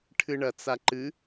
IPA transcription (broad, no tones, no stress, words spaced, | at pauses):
ʈʰɨɳɐt͡saǃɨ